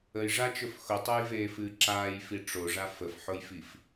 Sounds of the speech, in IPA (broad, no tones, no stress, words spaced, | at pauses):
əjʐat͡ʃɵf xʊtˤojveːfɨː ǁaːjfi ʈ͡ʂoʐa fəfħʊjfif